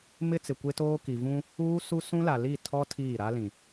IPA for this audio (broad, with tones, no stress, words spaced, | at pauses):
mɪ˦ t͡sɪ˨kʷe˦toː˦ ki˨vũ˦ | uː˦ su˦ sũ˦la˨ li˦˨ tʰɔ˦ tʰiː˦˨ɾa˦lĩ˨